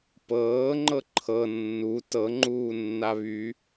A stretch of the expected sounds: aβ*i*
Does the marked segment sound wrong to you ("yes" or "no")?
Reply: yes